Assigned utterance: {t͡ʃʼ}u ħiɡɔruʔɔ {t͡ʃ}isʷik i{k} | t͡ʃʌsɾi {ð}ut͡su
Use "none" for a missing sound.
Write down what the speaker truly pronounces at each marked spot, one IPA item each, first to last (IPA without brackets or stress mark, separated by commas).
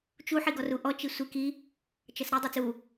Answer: t͡ʃ, t͡ʃ, none, dˤ